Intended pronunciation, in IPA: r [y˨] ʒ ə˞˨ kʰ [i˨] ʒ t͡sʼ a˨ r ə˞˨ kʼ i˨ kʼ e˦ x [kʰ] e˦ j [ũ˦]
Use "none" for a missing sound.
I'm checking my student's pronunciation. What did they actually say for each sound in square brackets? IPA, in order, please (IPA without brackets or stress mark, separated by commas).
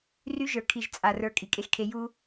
y˦, i˨, kʰ, u˦